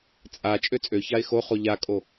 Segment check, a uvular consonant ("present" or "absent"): present